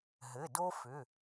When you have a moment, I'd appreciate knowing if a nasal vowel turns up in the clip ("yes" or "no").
no